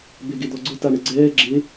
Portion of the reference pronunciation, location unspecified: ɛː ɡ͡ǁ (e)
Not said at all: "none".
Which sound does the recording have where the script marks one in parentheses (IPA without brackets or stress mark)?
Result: e